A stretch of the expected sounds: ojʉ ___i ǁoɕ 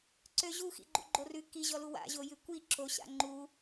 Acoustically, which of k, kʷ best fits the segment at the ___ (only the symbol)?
kʷ